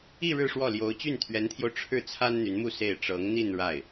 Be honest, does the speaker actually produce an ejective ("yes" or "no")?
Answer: no